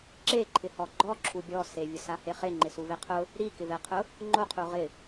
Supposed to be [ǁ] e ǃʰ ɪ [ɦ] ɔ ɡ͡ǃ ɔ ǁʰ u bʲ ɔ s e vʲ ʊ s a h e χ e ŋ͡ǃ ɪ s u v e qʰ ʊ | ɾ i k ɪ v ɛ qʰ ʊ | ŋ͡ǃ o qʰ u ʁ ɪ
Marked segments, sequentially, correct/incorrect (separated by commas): correct, incorrect